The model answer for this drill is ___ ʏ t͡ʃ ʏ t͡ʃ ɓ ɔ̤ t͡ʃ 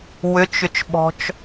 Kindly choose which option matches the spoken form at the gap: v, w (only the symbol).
w